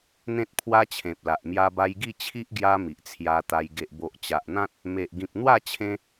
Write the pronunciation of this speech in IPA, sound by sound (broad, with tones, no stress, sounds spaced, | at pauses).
n̪ ẽ˦ t̚ pʰ w a˦ t͡ɕʰ ẽ˨ p̚ l a˨ ʔ m j a˧ b a˧ j ɡ i˥˧ t͡ɕʰ i˦ ʔ ɡ j a˧ m i˨ ʔ t͡sʰ j a˧ t̪ a˧ j ɡ e˨ ʔ b o˨ ʔ t͡ɕ a˨ ʔ n̪ ã˦ t̚ | m e˨ ʔ ɡ ĩ˨ p̚ n̪ w a˥˧ t͡ɕʰ ẽ˦